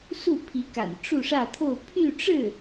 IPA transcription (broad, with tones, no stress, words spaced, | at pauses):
su˥˩pʰi˧˥ka̰˨˩n ʈ͡ʂu˥˧ʂä˥˧t̪ʰo˥˧ʊ̯ pʰy˥˧ ʈ͡ʂɻ̩˥˩